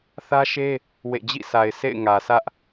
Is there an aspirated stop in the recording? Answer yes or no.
no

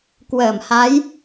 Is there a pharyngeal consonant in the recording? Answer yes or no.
no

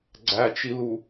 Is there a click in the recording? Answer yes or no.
yes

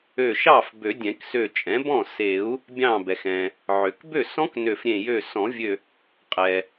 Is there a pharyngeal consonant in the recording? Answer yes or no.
yes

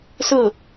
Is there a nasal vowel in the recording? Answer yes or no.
no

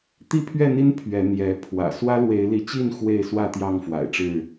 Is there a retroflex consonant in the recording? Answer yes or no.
yes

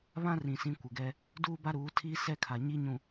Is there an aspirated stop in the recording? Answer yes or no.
yes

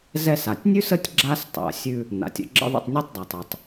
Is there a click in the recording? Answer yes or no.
yes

